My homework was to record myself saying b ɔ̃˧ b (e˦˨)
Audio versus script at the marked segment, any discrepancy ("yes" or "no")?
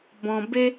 yes